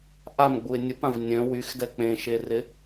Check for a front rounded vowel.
present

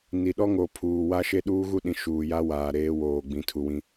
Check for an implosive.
present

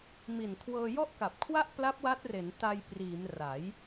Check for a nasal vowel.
absent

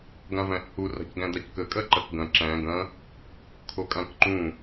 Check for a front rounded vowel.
absent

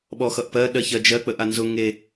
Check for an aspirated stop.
absent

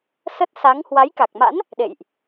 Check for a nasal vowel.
absent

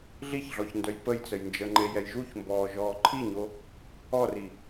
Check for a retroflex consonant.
absent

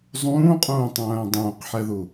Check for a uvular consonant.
present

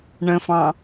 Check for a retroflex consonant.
present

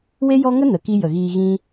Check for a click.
absent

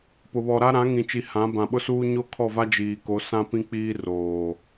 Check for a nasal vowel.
present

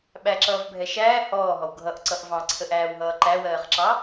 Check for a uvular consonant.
present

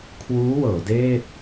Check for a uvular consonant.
absent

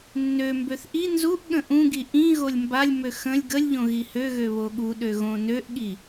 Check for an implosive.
present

